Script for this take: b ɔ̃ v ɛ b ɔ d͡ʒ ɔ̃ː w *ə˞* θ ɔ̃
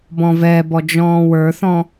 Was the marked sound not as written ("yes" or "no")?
no